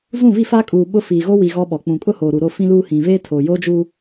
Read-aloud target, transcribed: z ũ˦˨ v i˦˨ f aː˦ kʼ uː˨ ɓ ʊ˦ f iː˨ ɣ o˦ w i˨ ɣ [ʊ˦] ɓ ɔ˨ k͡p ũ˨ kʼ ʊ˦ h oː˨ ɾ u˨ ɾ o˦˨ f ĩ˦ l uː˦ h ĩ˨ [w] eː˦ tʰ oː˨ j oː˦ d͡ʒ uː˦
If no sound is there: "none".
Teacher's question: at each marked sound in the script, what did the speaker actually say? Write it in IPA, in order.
ɔ˦, v

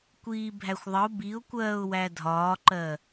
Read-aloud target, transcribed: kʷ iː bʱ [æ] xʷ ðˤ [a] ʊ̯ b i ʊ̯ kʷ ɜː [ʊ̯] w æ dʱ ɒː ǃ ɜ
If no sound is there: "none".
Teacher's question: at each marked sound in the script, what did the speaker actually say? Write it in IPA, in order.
æ, ə, ʊ̯

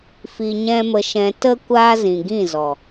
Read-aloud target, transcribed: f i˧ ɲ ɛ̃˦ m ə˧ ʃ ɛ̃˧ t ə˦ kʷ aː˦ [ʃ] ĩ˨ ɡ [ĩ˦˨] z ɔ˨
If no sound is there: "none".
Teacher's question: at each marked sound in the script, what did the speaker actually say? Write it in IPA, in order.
z, ĩ˦˨

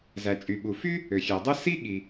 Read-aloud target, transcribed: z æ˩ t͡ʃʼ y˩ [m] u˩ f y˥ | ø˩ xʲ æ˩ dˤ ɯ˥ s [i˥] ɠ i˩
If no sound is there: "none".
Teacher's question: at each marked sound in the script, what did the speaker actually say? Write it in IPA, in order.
ɓ, i˥

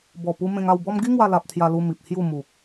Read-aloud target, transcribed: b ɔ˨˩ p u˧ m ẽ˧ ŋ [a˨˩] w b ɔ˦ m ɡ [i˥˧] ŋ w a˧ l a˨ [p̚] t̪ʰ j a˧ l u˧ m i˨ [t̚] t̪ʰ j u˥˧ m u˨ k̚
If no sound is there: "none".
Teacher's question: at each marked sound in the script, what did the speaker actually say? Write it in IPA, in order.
a˥˧, i˦, p̚, p̚

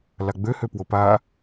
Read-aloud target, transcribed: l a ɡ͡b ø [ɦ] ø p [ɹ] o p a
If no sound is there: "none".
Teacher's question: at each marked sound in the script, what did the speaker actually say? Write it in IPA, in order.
h, w

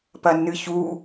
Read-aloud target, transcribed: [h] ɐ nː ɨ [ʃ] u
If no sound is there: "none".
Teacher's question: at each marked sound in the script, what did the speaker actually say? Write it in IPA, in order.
p, ç

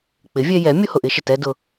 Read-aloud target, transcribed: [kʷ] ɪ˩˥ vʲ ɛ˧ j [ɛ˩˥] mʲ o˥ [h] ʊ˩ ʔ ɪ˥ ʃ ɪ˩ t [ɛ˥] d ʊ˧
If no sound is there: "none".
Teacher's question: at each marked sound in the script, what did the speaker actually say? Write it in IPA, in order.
k͡p, ɛ˩˥, h, ɛ˥

